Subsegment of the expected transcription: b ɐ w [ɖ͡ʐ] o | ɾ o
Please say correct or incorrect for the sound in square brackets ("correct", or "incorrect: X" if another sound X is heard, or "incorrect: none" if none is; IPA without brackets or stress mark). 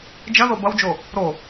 incorrect: d͡ʒ